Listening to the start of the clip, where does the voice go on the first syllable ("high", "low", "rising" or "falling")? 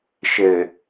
low